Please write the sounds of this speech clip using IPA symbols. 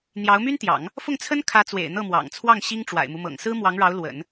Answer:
n̪ j ɑ˧˥ ʊ̯ m y˥ n t̪ j ɑ̰˨˩˦ ŋ | f ʊ˥˩ ŋ t͡sʰ ə˥ n kʰ ä˧˥ t͡s w ḛ˨˩ ɪ̯ n̪ ɤ˥˩ m w ɑ̰˨˩ ŋ t͡sʰ w ɑ˥˩ ŋ ɕ i˥ ŋ ʈ͡ʂ w a̰˨˩ ɪ̯ m u˦ m ɤ̰˨˩ ŋ s ɹ̩˥ m w ɑ˧˥ ŋ ɻ ɑ˧˥ ʊ̯ l w ə̰˨˩˦ n

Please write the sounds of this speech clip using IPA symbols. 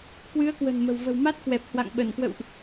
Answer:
k w ɨ˨˦ ə̯ k w ə̤˨˩ n m ə̤˨˩ w v ə̤˨˩ w m a˦˥ t̚ k w ɛ˨˩ p̚ h w a̰˧˨ ŋ ɓ ə˧˩ n k w ə̰˧˨ w ʔ

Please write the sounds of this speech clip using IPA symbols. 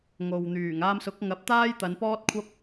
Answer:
ŋ o˨ w n̪ yː˨˩ ŋ aː˧ m s ʊ˨˥ k̚ ŋ ɐ˨˥ p̚ t̪ aː˥ j t̪ ɐ˨˧ n p ɔː˥ t̚ kʷʰ ɐ˥ p̚

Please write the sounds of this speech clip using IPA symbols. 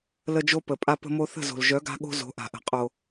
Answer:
l ə˧ d͡ʒ o˧ p ə˨ pʼ a˧ p ə̤˧ m o˧ θ ə̤˦˨ z o̤˨ l ʒ œ˨˦ ɡ a̤˧ ɠ o̤˧ z o̤˨˦ ʔ a̤˨ ʔ ə̤˨ qʼ o˨

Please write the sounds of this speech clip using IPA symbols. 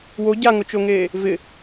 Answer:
w o ɟ a ŋ ʊ t͡ʃ o ŋ eː | v ɪ

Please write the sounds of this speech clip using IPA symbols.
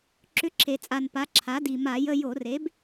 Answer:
ǁ ʏ˧˥˧ ǁʰ e˨˩ t͡sʼ a˨˩ n p a˩˥ ǁʰ a˩˥ d i˨˩ m a˧˩˧ j ə˧˥˧ j o˧˩˧ r e˩˥ b

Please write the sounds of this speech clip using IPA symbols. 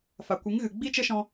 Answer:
f a˨ kʷ ɨ˨˦ ŋ ɣ ɨ˨ ɡ͡b i˦ t͡ʃ ə˦ ʃ ɔ̃˧

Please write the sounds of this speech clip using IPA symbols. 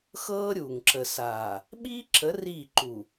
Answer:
x ɤː˦ ɾʲ uː˨ ŋ ǁ ə˨ s aː˨ | ɓ iː˦ ǁ ə˨˦ r iː˦˨ ǃ u˨

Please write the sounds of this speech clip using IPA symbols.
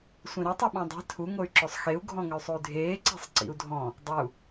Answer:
sʷ ĩ ɾ ɵ tˤ ɵ ɓ ɔ̃ dˤ e̤ tʰ u ŋ o y̯ ǁ ɵ sˤ x e u̯ ɡʱ ɔ̃ ŋ ə y̯ sˤ u y̯ dʱ eː ǀ e̤ sˤ ǀ ḭ u̯ dʱ ɔ̃ | dˤ ə u̯

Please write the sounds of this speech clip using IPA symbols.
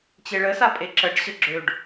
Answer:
t͡ɕ e ɭ ə s a pʼ e ǁ ə ɖ ɕ ə ɡ͡ǁ ø ɖ

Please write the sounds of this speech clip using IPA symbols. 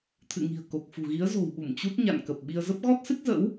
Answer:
t̪ʰ ɨ̰˧˨ ŋ i̤˨˩ ə̯ k o˨˩ k̚ f ṳ˨˩ ɣ i˨˦ ə̯ z o̤˨˩ w ɓ u˧˩ m t͡ɕ u˦˥ t̚ ɲ a̰˧˨ n k ə˨˩ p̚ ɓ i˧ ə̯ z ə˦˥ p̚ ɣ ɔ˦˥ t̚ s ɨ˦˥ k̚ z ə̰˧˥ w

